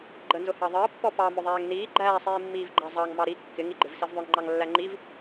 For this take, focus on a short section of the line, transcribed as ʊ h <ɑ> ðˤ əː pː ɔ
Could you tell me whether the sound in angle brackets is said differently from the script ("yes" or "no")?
no